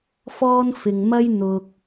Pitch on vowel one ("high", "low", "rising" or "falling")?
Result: high